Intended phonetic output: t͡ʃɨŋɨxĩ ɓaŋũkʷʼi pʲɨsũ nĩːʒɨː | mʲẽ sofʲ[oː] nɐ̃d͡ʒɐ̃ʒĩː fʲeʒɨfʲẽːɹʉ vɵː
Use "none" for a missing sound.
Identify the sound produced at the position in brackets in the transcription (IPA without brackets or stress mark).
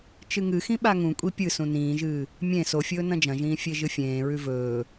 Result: ɵː